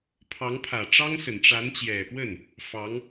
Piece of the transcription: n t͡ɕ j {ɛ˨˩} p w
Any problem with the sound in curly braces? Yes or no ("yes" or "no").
no